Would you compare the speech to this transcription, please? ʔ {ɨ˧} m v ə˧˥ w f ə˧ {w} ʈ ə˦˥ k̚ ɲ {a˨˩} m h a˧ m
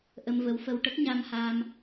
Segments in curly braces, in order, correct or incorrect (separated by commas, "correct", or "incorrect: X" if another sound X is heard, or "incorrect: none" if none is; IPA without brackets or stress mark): incorrect: ə˧, correct, incorrect: a˧